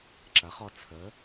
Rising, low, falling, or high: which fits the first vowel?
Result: rising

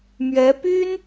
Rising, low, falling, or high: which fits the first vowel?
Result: rising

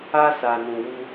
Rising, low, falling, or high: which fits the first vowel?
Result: high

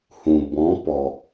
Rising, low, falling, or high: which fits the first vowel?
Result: low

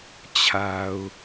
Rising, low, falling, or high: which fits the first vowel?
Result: low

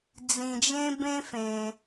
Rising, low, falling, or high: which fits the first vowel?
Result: low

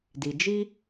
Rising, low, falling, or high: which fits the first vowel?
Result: low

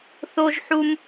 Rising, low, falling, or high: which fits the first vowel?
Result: high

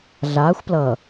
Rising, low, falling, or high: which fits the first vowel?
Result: rising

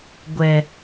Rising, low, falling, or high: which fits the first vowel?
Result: low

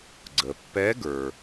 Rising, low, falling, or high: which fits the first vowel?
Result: low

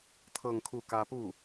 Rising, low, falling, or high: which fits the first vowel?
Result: falling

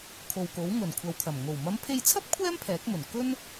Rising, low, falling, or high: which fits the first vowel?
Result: low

